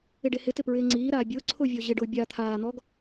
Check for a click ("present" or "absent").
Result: present